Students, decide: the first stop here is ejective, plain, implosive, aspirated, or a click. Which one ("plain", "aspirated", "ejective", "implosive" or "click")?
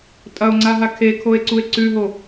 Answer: ejective